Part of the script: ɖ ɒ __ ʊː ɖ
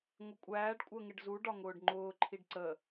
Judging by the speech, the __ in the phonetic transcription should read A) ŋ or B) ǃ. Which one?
A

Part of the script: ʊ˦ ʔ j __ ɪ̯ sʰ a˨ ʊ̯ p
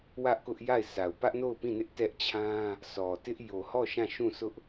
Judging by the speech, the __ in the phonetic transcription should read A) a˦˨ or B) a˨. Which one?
A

